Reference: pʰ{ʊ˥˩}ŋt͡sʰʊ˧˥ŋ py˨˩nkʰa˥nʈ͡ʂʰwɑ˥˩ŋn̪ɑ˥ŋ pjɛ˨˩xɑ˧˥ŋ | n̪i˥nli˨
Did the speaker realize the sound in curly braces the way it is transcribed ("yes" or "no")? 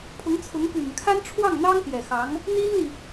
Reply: no